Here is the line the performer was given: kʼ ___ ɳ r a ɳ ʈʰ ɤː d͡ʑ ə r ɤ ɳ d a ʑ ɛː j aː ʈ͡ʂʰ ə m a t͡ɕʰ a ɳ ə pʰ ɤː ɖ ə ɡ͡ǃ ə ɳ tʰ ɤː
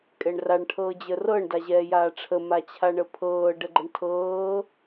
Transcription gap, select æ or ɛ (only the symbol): ɛ